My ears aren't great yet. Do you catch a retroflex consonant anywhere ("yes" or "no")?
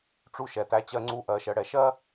yes